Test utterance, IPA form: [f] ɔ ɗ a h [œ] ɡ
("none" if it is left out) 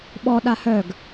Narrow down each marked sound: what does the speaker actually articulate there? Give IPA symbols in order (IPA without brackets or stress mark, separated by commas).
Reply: ɓ, œ